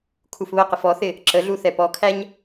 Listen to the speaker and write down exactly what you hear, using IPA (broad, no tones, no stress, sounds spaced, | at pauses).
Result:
kʰ u f β ə q ɪ f ɔ θ ɪ | ǁ ə ɮ u θ ɛ p ɔ kʰ æ ɲ